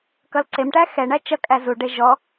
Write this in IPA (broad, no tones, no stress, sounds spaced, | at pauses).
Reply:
k ʌ l ǀ e m ʈ æ x ɛ ɳ æ t͡ʃ ʌ kʼ æ z u ɖ e ʒ ɔ